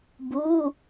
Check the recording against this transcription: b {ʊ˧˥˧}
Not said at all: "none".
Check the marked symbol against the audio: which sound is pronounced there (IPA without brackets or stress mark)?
u˧˥˧